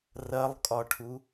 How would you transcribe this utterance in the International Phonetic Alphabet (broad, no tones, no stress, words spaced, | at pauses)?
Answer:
rɐlˠkʼɒʈʰu